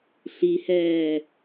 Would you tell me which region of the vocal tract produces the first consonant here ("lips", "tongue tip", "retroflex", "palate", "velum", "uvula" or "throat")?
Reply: tongue tip